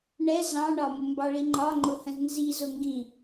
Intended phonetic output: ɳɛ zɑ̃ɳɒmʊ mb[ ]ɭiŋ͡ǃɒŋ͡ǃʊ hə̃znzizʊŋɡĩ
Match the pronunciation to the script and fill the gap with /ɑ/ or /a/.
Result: ɑ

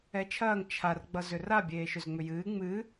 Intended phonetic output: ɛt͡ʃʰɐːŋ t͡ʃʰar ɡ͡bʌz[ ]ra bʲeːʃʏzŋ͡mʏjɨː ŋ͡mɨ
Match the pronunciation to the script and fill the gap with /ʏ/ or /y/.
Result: ʏ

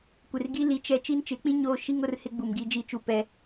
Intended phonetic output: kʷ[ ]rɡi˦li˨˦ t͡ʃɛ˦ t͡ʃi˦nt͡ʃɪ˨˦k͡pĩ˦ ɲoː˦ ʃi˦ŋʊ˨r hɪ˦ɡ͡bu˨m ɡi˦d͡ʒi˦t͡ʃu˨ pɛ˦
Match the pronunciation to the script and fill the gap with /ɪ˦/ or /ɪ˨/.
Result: ɪ˨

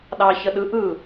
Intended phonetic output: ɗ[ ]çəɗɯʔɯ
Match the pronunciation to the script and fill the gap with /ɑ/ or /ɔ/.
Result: ɑ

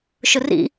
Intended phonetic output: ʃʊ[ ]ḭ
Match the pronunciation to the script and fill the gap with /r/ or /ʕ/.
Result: r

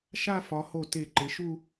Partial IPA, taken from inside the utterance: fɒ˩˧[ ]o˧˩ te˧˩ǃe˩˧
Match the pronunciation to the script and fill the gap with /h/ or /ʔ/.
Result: h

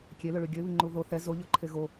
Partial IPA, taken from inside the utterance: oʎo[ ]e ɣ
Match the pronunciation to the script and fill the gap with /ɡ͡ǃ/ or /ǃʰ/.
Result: ǃʰ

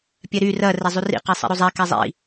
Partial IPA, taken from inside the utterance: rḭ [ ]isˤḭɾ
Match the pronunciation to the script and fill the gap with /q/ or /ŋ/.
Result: q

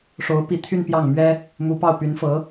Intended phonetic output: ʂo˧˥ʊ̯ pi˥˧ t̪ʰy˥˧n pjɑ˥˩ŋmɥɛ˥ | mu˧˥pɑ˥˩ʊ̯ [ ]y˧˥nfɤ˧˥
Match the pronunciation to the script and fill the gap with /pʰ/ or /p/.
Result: p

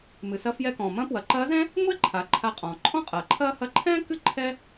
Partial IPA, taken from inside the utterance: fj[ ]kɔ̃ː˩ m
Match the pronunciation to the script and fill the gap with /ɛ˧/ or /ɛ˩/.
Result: ɛ˧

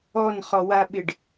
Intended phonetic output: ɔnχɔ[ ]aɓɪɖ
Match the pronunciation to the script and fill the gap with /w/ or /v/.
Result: w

